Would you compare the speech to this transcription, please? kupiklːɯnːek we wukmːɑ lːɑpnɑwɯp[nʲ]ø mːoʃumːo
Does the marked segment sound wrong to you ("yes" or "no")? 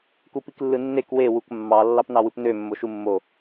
yes